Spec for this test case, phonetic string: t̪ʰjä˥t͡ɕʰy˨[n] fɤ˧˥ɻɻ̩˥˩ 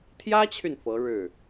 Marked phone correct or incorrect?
correct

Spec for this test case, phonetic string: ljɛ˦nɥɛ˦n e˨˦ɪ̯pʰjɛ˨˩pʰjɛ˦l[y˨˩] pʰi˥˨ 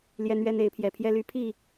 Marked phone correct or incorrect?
incorrect: y˦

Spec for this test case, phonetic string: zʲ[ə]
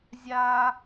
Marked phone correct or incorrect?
incorrect: a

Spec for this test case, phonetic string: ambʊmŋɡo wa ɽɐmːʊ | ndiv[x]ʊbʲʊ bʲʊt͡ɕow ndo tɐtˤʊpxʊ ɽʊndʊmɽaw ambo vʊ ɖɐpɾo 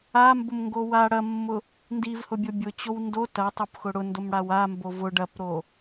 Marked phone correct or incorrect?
incorrect: h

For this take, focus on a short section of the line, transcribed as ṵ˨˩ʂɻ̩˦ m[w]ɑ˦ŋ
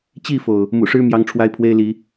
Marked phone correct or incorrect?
incorrect: j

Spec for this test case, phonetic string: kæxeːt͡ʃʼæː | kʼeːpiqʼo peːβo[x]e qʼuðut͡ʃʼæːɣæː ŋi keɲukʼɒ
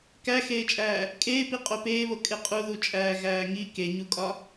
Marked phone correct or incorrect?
incorrect: kʼ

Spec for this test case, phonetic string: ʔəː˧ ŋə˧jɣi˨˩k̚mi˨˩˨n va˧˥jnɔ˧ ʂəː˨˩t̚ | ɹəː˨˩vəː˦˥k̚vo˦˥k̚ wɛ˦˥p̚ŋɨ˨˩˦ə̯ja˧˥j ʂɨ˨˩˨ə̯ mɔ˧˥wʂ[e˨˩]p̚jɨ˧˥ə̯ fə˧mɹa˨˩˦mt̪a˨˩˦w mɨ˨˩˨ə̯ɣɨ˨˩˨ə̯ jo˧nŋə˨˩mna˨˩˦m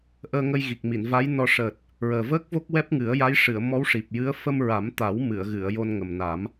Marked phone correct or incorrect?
incorrect: i˨˩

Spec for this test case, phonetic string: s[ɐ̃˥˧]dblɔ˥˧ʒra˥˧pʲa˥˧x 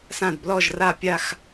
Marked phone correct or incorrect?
incorrect: ã˥˧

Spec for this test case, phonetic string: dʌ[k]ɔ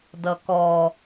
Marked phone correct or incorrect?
correct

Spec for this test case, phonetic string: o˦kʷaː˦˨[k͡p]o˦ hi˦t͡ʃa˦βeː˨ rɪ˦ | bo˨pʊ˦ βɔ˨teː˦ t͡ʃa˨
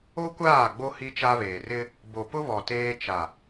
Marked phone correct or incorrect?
incorrect: ɡ͡b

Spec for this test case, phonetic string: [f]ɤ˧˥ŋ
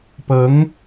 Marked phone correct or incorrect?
incorrect: p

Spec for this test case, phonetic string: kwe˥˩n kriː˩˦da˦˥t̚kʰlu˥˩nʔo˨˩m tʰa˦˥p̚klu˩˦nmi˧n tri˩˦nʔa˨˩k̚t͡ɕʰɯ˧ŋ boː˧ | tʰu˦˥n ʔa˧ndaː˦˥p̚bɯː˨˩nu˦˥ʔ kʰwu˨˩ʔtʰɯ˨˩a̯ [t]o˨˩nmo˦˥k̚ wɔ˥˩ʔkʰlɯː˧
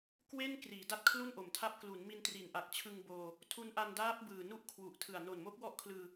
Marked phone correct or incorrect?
incorrect: n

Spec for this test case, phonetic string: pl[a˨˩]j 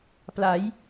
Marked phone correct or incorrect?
incorrect: a˩˦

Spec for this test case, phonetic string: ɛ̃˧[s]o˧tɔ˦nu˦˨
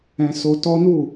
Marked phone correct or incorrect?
correct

